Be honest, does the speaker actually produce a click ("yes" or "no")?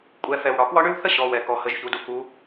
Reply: no